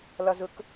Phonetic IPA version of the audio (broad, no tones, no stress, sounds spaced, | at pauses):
l ɒ z ʊ k